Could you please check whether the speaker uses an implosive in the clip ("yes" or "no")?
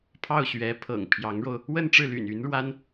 no